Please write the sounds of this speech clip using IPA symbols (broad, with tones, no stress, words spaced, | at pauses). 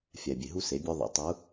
fʲæ˨bʲe˨ɦu˦se˨˦ bʲo˦ðˤḭ˨˦tˤu˨˦